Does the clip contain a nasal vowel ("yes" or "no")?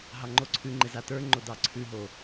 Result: no